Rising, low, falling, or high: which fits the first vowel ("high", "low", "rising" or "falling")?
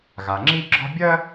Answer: low